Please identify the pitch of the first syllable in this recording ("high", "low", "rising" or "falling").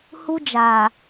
high